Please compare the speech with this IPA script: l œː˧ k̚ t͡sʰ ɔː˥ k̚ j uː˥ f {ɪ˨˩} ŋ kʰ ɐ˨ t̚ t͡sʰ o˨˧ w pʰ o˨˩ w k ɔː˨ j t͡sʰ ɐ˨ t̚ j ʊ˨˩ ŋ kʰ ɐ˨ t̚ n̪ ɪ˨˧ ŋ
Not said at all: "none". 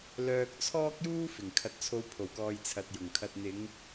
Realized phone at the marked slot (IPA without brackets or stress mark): ɪ˨˩